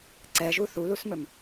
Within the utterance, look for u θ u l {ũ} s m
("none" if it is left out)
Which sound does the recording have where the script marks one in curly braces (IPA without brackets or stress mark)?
u